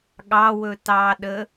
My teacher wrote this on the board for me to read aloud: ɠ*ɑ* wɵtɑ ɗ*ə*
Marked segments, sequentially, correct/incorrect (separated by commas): correct, correct